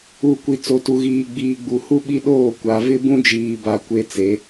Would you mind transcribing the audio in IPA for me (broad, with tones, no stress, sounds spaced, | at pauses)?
u˨ kʷ i˨ t͡s o˨ t u˨ ɣ iː˨ ɡ͡b iː˨ ɡ͡b u˨ h u˦ ɓ i˦ ɗ oː˦˨ kʷ a˨ v ɪ˦ b ũ˦ d͡ʒ iː˨ b a˨ kʷ e˦ t͡s e˨˦